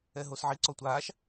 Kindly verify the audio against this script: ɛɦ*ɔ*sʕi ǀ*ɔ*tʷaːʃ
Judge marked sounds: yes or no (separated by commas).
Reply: no, yes